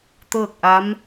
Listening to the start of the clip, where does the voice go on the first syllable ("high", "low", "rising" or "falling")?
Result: falling